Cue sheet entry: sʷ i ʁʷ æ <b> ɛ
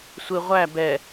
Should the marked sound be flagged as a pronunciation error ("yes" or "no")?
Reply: no